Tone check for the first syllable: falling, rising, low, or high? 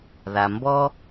low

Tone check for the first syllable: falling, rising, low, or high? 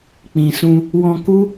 low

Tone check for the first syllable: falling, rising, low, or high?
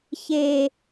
low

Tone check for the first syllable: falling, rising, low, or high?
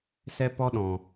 high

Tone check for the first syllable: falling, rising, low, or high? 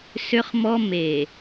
high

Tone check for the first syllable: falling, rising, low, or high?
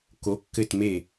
rising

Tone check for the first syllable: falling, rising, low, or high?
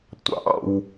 high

